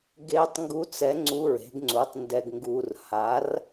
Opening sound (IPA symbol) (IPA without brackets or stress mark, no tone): ɡ